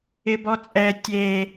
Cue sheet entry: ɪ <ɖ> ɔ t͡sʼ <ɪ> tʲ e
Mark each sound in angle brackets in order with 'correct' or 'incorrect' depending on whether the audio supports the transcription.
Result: incorrect, incorrect

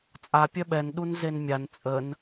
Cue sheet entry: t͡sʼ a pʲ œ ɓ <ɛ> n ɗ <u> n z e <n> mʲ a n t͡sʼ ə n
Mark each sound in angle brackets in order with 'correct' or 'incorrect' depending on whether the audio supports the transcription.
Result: correct, correct, correct

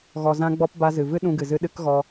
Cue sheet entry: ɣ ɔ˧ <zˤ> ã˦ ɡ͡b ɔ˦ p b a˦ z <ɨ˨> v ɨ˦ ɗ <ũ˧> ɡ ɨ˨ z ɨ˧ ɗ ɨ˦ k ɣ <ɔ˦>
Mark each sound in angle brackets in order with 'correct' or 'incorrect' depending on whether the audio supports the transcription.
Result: incorrect, correct, correct, incorrect

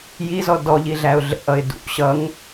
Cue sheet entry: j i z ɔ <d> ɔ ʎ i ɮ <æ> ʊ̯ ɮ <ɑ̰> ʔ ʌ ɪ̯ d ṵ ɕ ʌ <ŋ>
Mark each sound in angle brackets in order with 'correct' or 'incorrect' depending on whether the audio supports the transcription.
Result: correct, correct, incorrect, correct

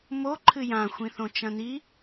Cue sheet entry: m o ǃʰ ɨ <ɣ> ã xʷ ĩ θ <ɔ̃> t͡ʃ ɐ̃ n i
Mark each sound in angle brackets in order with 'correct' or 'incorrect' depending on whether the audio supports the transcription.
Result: incorrect, incorrect

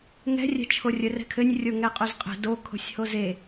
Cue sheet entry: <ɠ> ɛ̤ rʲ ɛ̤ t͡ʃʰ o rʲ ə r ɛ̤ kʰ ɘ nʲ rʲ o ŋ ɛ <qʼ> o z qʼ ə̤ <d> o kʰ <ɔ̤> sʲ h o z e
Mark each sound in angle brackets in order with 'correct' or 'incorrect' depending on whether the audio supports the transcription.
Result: incorrect, correct, correct, incorrect

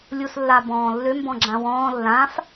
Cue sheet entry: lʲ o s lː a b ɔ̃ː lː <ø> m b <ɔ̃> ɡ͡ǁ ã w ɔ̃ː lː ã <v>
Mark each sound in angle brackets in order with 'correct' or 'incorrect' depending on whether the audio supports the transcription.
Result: correct, correct, incorrect

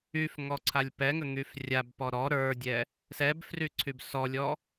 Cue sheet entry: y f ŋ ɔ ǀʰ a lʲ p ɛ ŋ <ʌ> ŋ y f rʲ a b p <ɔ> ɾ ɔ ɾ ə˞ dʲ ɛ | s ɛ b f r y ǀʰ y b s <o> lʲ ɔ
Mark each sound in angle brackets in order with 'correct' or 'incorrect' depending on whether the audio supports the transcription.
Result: incorrect, correct, incorrect

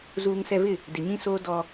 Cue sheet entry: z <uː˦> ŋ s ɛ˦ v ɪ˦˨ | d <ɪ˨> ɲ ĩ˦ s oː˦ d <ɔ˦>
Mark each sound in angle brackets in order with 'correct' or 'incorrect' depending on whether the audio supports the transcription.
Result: correct, correct, correct

